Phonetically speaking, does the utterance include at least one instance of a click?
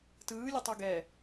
no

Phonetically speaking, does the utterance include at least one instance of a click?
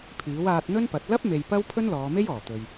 no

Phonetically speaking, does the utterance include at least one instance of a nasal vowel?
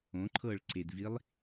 yes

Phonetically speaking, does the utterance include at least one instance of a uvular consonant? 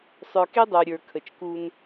no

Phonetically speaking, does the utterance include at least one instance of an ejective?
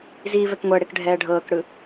no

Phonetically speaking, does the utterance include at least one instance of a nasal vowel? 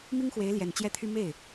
no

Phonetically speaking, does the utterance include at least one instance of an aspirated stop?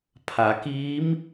yes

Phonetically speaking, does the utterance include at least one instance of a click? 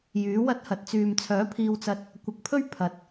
no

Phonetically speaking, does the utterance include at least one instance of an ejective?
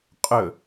yes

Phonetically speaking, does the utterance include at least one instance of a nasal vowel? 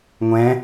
yes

